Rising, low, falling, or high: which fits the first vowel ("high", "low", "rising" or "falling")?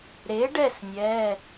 rising